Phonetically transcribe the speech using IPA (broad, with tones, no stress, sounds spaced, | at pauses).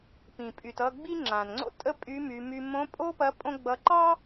p ĩ˩ pʼ y˩ t ʌ˧ ɡ͡b i˥ ŋ͡ǁ ã˩ n ŋ͡ǀ o̰˥ tʼ ə˥ pʼ y˧˥ m y˩˧ m y˧ m õ˧˥ pʼ o˥ p ɐ˧˥ pʼ õ˥ ɡ͡b ʌ˧˥ ǃ ɑ˥